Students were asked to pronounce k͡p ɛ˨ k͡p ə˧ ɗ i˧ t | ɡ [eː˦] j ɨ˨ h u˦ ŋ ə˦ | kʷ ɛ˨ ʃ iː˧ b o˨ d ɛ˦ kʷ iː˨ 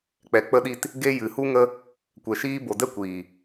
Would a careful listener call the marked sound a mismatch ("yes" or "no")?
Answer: yes